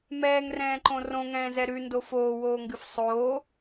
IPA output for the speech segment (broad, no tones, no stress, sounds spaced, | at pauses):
m ɛː ŋ r ɛ̃ː ǃ õ r õ ŋ ɛ̃ː z ɛ ɾ ʉ n d o f oː w oː ŋ ɡ ɨ f sˤ oː